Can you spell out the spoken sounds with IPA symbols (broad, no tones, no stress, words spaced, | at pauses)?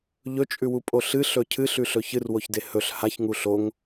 ʎɵt͡ʃʼʉwupʼo ɬɨɬɵ cʰɨɬʉɬɵ çɨrwoçde hɵɬ haçŋu ɬoŋ